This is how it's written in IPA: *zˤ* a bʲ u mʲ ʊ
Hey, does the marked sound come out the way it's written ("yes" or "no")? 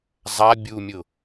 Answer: yes